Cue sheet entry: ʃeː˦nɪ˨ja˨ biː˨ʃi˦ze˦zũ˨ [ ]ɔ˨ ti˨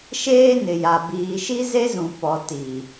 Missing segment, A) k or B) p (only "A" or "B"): B